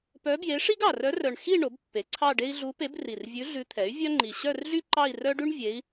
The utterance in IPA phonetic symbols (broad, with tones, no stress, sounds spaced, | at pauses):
p œ˧˥ b j e˧˥ ʂ i˥ ɡ ɑ˨˩ r œ˧˥ r œ˨˩ ɳ x i˥˧ ɳ o˩˥ b pː e˩˥ ǀʰ ɑ˥˧ ɖ e˥ i̯ ɮ u˧˥ p e˧˥ b r i˨˩ r vʲ ʉ˧˥ ɮ ʉ˧˥ t̪ʰ ɛ˩˥ y̯ vʲ œ˥ ŋ͡ǃ i˨˩ ɕ œ˥˧ r ɮ y˥ ǃ ɑ˥˧ i̯ r œ˥ ɖ ʉ˥ ɳ vʲ e˧˥ i̯